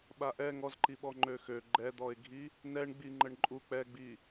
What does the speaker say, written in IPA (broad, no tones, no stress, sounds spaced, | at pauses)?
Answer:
ɓ a ʔ ɛ ŋ ɔ z ǃ i ɓ ɔ ŋ͡ǃ ø x ø ɡ͡ǃ ɛ d̪ ɔ ɪ̯ ɡʱ i | n ɛ ɳ ɡ͡b i ŋ͡ǃ ə ɳ ǃʼ u k͡p ɛ ɡ͡b i